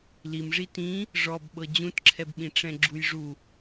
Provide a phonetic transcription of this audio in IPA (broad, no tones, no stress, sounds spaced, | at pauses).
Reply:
l i m ʐ i t ĩ | ʐ ɔ b ɓ ɤ d͡ʑ ũ t ǁʰ ɛ b ɓ ĩ ʈ͡ʂ ɛ̃ ɡ͡ǁ u j ʐ u